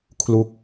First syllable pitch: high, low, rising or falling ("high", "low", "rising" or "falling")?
falling